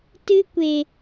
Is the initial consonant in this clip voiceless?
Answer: yes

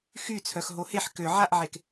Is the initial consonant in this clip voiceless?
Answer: yes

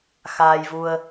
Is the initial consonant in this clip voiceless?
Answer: yes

